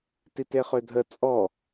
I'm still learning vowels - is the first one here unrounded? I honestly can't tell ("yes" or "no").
yes